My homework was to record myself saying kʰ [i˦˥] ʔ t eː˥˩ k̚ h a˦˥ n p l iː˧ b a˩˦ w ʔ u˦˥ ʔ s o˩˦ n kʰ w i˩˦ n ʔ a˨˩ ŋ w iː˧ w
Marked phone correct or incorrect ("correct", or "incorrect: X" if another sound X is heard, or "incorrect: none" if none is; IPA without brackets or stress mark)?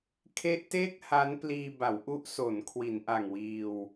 incorrect: e˦˥